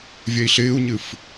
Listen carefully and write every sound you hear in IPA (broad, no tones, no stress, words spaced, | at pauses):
vʲɛi̯ɬɪːu̯ɲɨf